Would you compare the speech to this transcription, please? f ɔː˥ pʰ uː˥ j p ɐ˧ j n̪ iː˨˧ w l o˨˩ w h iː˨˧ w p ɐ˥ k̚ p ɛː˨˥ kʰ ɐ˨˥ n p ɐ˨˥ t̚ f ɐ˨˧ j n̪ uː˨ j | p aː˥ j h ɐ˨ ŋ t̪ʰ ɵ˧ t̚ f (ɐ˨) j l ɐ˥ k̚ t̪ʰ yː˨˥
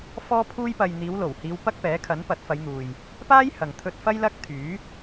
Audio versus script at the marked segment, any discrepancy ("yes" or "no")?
yes